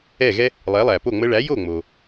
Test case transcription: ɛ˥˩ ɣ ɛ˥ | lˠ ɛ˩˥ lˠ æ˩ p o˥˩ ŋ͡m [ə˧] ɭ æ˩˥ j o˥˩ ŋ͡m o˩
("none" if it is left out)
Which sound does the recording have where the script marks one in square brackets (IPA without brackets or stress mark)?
ə˧